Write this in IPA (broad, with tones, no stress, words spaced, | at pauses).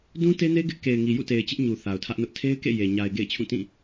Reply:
dũ˦te˦ne˦ ɡɪ˦ʔ ke˨ɪ̯ŋi˨jṵ˦˨te˨ɪ̯ t͡ɕɪ˦ʔɲu˨ θa˨ʊ̯tʰä˦ʔnʊ˦ʔ tʰe˦ɪ̯kḛ˦˨ je˨ ɲa˨ɪ̯ɡḛ˦˨ɪ̯ t͡ɕʰũ˦˨tĩ˦˨